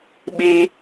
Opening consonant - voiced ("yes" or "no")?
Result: yes